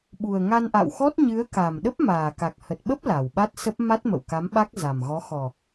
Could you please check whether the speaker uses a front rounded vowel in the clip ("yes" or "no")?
no